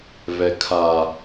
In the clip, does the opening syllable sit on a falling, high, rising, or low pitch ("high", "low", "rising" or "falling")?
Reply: low